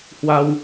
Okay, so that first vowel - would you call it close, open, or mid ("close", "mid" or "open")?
open